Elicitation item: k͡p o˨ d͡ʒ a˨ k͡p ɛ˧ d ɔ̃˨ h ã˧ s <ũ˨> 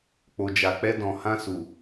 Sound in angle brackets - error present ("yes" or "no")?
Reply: yes